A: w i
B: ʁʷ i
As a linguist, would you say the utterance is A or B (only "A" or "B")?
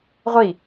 B